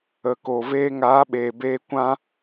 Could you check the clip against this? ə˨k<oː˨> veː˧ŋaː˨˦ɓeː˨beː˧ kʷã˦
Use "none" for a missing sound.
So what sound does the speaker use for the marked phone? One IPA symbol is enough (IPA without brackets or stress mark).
o˨